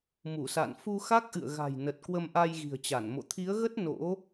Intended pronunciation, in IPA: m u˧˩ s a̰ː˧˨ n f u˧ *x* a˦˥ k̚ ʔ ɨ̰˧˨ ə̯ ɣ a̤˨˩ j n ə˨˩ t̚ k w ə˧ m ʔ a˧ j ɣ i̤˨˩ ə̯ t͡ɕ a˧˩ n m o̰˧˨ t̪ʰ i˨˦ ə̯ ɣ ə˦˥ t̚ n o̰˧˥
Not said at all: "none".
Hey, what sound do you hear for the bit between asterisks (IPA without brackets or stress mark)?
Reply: x